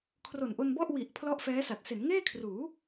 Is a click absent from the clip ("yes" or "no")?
yes